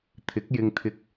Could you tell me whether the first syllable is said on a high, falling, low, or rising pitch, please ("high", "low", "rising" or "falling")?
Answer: rising